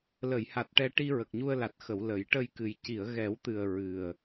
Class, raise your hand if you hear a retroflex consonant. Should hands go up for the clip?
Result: yes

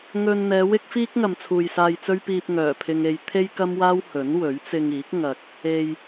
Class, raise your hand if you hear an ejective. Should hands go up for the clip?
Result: no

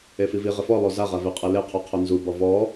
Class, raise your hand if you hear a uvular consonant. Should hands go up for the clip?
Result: yes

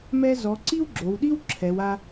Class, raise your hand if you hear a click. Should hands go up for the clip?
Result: yes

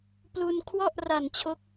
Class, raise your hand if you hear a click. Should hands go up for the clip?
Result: no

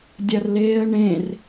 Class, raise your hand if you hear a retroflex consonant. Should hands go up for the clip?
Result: yes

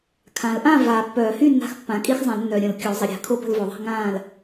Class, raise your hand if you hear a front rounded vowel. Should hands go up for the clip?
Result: yes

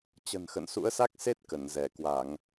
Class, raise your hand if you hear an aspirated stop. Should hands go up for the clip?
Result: no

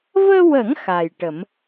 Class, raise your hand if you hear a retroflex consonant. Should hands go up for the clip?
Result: yes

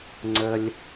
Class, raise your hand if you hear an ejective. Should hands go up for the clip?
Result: no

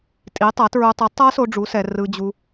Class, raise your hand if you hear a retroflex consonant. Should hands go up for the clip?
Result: yes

